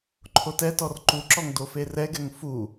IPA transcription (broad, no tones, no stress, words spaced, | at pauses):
ǃʰotɛtɔr ǃuǁɔŋ doferɛɡɛŋ fu